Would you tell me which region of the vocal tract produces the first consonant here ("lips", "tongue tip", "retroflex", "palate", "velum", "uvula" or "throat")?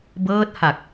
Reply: lips